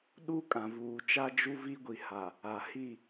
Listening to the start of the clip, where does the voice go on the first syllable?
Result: high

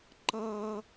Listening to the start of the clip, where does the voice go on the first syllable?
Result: high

